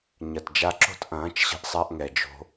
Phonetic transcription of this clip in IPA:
ɲɐ˨td͡ʒa˧ǁo̤˦t ʔɐ̃ː˨˦t͡ʃɕə̤˧ʔsˤa˧ʔŋɛ˨ d͡ʒo̤˦

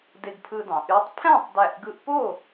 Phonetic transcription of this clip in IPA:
de˧ɡpʰɯ˧dɑ̃˩˧ʔy˦˥tˤ pʰæ̃˥˨tˤdæ˧˩ʔɡɯ˧ʔpo˥˨

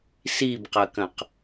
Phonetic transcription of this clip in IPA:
sibqɐkɐ̃q

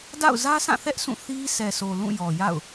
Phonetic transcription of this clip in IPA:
da̰˦˨ʊ̯zä˦sã˦˨θɛ˦ʔ sʰũ˦˨θi˦ sʰɛ˨so˨ lũ˦˨jɔ˨ja̰˦˨ʊ̯

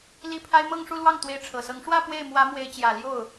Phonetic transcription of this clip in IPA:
li˥˩pʰa˥ɪ̯ mɤ˥˧ŋʂu˥˧lwɑ˥˩ŋ t̪we˧˥ɪ̯ʈ͡ʂʰɤ˨˩sɤ˧˥ŋ ʂwä˥˧ pwe˥˩ɪ̯mwä˧˥ mwe˧˥ɪ̯t͡ɕjä˨˩ ljo˥˩ʊ̯

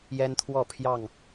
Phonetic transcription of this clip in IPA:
jɛ˦nt̪ʰwɔ˥˨ pʰjɑ˥˨ŋ

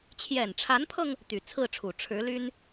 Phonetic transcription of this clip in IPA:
t͡ɕʰjɛ˨˩nʈ͡ʂʰa˧˥npʰɤ˧ŋ | t̪y˨˩t͡sʰɹ̩˥˩ʈ͡ʂʰu˨˩ ʈ͡ʂʰɻ̩˧˥ly˥n

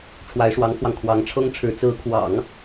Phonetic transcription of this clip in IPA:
ʈ͡ʂʰwa˧˥ɪ̯ʂwɑ˧˥ŋpʰwɑ˧ŋ kʰwɑ˧˥ŋʈ͡ʂʰɤ˥ŋ ʈ͡ʂʰɻ̩˧˥ t͡sɹ̩˧˥kʰwɑ̰˨˩˦ŋ

